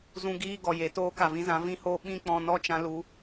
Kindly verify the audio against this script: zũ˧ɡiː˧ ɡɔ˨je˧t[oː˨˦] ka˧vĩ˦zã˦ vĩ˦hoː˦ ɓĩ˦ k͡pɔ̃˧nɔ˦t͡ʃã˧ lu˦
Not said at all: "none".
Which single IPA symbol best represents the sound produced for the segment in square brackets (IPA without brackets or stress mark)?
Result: oː˦